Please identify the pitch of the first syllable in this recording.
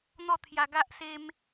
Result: falling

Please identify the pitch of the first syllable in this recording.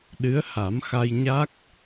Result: rising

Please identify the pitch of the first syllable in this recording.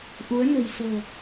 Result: rising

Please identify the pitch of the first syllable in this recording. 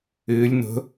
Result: rising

